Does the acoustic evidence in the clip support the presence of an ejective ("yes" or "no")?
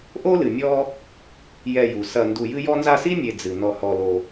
no